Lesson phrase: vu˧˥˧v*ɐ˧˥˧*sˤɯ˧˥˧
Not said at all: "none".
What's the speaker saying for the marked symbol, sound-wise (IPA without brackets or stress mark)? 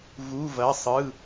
ɐ˧˥˧